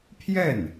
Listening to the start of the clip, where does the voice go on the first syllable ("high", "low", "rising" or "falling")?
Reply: falling